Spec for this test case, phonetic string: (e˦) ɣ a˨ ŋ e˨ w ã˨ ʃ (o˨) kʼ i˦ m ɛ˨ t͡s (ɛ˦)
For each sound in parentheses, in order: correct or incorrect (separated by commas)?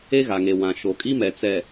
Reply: correct, correct, incorrect